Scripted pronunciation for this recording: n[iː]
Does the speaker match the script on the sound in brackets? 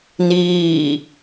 yes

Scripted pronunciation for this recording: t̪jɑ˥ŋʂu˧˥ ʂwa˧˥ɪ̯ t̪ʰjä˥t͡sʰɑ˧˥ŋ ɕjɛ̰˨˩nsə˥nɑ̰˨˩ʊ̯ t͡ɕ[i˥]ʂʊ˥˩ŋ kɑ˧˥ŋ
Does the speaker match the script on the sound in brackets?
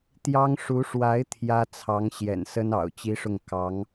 yes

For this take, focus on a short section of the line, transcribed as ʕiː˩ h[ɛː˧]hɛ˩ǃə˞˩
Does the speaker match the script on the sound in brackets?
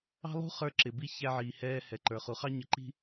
yes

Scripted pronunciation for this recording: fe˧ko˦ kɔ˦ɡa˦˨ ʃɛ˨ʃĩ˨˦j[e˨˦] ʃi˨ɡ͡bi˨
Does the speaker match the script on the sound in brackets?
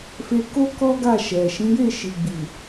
no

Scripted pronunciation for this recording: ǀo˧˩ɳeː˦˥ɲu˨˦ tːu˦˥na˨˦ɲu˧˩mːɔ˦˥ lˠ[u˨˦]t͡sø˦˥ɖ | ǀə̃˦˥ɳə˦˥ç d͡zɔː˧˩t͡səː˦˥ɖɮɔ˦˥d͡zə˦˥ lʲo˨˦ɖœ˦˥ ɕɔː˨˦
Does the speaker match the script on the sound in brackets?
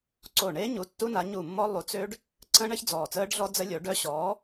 yes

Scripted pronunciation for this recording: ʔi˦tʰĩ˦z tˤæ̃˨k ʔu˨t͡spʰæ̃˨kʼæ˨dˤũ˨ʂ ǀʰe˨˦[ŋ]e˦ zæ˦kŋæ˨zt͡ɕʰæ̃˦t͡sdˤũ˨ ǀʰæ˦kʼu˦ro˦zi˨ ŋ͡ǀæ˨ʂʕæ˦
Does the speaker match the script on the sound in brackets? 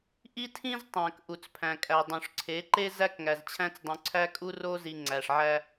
no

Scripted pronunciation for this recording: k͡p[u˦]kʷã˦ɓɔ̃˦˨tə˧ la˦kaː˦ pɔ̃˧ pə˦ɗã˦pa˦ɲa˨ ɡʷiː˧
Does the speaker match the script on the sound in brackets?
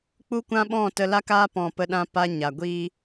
yes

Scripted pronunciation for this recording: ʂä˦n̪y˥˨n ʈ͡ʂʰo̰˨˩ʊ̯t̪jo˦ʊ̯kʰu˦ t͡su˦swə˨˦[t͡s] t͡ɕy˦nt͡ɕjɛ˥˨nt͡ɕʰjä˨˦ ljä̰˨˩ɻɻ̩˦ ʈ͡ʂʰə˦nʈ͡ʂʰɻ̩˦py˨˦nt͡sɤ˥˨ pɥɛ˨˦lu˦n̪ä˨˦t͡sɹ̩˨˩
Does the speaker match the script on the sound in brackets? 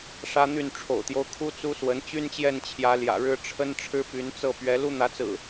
no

